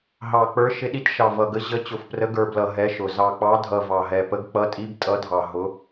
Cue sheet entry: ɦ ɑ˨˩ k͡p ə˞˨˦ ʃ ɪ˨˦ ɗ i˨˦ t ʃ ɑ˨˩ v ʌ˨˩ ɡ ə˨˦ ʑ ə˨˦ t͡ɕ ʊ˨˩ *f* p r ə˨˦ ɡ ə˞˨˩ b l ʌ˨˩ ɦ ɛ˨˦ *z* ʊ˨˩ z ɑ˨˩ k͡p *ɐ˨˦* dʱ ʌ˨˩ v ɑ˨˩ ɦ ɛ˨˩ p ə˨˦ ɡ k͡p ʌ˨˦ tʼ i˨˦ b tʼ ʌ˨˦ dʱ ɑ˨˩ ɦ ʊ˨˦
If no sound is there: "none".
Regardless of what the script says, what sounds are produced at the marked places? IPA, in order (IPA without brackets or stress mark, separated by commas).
f, ʃ, ɑ˨˦